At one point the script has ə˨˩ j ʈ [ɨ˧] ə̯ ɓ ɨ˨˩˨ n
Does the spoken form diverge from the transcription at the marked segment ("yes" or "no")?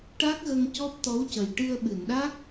no